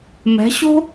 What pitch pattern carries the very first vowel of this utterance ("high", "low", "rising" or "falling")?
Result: rising